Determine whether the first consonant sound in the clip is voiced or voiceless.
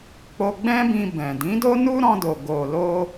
voiceless